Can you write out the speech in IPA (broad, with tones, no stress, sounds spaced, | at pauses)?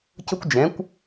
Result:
c ʊ˥ kʷ d͡ʒ ɛ̃˩˥ kʷ